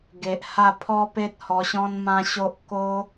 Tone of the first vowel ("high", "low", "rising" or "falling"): low